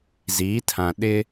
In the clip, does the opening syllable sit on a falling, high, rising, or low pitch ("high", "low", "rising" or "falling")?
rising